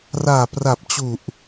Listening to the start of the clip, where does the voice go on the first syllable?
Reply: low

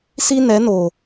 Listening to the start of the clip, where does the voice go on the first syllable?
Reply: high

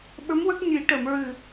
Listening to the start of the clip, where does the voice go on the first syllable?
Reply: rising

